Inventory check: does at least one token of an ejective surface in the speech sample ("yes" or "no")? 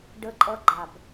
yes